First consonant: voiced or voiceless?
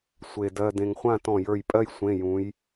voiceless